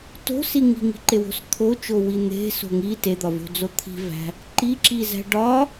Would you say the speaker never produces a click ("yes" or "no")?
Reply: no